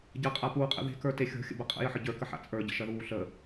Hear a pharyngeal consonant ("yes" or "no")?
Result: yes